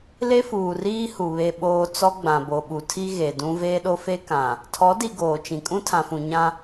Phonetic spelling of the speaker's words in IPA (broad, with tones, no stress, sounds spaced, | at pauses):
l e˦ f uː˨ r iː˦ h u˨ β e˨ ɓ oː˨ t͡s ɔ˦ ɡ͡b ã˨ b o˨ ɓ u˨ tʰ i˦ ɣ e˨ d ũ˦ v eː˦ ɗ o˦ f e˦ k ã˨ | tʰ ɔ˨˦ d i˨ ɡ oː˨ t͡ʃ ĩ˨ kʼ ũ˦ tʰ ã˨ f ũ˨ ɲ ã˦